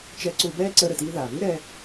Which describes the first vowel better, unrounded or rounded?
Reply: unrounded